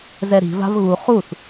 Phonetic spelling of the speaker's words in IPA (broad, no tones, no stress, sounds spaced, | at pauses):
z ɛ ɾ i̤ v a̤ v ɣ u χ u θ